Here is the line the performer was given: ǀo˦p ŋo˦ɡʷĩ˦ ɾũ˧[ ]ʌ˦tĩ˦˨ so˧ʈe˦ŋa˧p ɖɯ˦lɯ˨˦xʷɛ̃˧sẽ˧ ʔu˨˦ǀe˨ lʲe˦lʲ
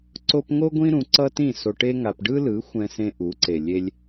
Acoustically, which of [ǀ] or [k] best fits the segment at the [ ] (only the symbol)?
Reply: ǀ